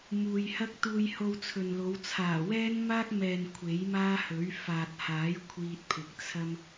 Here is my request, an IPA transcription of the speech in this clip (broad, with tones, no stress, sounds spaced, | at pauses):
m uː˨ j h ɐ˥ k̚ t̪ uː˧ j h o˧ w t͡sʰ ɵ˨ n l o˨˧ w t͡sʰ aː˨˩ w ɛː˥ n m aː˥ k̚ m ɛː˨ n kʷʰ e˨˥ j m aː˥ h ɵ˨˥ ɥ f aː˨ t̚ h aː˨˥ j kʷʰ iː˧ t̚ pʰ ɪ˨ k̚ t͡sʰ ɐ˥ m